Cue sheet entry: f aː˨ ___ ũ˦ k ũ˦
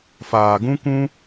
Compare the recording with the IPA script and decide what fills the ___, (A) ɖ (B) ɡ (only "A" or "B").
B